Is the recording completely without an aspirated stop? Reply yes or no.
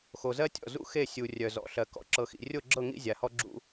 yes